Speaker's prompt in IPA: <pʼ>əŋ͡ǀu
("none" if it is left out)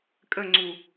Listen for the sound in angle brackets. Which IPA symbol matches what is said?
kʼ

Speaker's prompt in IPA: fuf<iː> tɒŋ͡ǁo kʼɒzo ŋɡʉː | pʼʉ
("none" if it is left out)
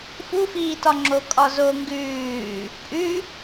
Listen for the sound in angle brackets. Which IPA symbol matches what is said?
iː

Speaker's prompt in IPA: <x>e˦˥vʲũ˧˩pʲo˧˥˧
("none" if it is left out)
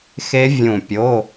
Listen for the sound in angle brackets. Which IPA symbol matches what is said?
x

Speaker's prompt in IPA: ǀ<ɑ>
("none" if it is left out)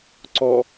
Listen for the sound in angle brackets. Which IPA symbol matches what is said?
ɔ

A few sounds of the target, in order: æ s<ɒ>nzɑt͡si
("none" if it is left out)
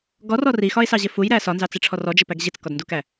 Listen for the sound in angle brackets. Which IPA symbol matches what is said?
ɒ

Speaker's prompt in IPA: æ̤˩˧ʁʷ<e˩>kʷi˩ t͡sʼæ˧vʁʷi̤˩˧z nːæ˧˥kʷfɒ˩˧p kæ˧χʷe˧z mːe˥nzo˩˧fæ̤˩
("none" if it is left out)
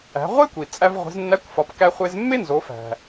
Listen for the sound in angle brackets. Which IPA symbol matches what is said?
e˥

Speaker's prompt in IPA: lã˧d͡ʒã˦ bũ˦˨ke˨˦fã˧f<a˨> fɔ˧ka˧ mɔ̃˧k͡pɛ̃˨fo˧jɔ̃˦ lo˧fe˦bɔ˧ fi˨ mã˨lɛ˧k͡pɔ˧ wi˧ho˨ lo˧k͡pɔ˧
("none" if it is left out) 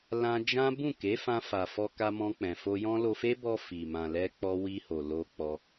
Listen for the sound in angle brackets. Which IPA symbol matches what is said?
a˨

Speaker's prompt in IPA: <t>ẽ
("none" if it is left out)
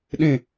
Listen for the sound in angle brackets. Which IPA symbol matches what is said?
ɗ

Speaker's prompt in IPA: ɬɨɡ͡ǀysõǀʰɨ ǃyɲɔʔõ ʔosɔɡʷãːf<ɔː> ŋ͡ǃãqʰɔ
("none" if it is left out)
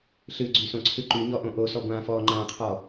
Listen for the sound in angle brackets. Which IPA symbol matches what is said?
ɔː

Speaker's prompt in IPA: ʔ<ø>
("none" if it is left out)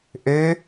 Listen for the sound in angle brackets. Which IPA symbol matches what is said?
ø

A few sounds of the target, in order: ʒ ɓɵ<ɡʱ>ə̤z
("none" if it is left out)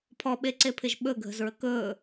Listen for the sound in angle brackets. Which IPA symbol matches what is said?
ɡʱ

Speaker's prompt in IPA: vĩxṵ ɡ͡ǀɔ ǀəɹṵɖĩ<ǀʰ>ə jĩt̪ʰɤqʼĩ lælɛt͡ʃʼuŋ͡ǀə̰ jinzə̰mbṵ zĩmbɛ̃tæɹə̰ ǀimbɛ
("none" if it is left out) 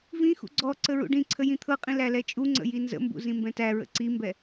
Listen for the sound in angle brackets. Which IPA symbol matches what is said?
ǀʰ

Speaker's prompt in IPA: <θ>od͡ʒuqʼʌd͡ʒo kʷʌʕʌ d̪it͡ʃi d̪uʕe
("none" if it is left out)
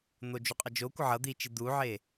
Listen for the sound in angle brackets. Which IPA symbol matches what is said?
n̪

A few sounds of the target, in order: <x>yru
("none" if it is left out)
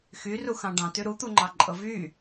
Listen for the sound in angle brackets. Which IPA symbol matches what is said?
x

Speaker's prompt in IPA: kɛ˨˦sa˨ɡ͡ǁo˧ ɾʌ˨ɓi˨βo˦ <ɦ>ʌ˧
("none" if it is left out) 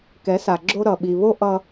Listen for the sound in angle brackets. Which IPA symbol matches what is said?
ʔ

